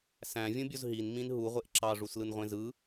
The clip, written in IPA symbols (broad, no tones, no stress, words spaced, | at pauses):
sæ̃vʲũbʲoz ɦinmĩn ɦuʁʷeʔ ǁɑʐuslɯnʁʷẽ zɯ